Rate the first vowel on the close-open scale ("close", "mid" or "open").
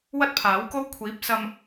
open